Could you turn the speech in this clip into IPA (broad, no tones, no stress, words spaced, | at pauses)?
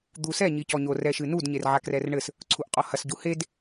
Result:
d̪usɛ ɲicɔɲo rɛʃɨnud ɲerʕakrɛrɳɘs | ǀʰuʔqʼɔhɐs ɟuhed